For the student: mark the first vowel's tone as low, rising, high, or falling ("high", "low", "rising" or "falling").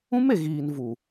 high